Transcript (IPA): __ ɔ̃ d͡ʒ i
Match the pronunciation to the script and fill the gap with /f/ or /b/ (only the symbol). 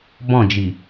b